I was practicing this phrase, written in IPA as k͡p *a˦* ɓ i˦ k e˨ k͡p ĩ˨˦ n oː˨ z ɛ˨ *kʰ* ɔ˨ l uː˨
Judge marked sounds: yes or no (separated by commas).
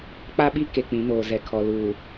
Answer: yes, yes